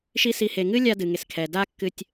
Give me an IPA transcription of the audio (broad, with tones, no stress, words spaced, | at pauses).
ʃi˦si˧ he˨ŋɨ˦lʲa˧ dɨ˨ŋe˨skʰɛ˨ da˦kːɨ˧tʲ